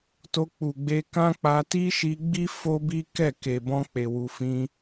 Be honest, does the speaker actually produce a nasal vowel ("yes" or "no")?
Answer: yes